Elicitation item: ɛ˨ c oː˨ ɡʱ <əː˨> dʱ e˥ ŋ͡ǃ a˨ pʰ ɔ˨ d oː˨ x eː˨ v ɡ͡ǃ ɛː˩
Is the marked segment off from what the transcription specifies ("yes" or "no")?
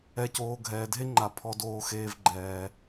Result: yes